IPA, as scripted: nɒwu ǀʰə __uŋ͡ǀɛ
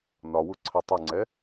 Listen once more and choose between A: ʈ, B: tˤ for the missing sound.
B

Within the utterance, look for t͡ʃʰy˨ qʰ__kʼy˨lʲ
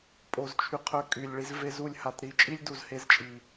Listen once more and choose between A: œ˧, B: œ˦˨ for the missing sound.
A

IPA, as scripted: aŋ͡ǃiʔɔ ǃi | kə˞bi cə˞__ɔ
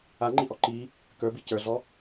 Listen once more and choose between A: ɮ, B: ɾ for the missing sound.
A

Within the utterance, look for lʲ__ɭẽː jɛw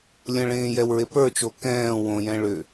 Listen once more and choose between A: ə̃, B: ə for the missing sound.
A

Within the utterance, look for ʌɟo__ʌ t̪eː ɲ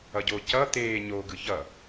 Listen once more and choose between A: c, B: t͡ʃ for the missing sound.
A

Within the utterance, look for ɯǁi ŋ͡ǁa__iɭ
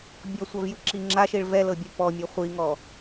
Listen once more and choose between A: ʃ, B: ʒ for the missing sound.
A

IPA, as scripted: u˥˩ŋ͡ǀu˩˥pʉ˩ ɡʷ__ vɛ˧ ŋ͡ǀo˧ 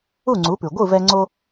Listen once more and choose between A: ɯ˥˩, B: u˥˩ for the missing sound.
A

